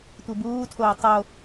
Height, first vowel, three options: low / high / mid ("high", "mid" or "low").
high